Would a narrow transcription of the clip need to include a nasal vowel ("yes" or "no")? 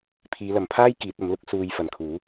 no